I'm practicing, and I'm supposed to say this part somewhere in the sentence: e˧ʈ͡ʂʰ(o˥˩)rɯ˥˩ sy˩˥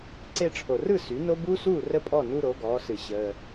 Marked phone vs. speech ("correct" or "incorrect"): incorrect